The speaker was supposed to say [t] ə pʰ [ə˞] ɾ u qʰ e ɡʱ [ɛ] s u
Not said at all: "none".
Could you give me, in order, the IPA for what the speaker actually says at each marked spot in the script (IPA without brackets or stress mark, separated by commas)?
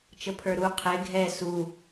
t͡ʃ, ə˞, ɛ